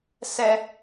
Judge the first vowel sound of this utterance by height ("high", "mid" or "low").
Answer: mid